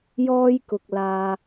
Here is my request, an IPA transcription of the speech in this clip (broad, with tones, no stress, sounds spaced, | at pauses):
j ɔː˥ j k ʊ˨ k̚ l aː˧